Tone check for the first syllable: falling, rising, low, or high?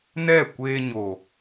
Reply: falling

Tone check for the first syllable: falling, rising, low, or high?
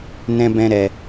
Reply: high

